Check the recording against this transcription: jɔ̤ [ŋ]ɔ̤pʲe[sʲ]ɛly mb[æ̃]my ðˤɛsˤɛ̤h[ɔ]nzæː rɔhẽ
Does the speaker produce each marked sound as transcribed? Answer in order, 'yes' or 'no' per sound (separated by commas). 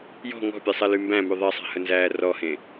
yes, no, yes, no